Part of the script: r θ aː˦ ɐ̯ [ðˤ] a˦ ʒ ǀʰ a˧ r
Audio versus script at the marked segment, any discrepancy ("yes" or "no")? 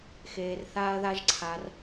yes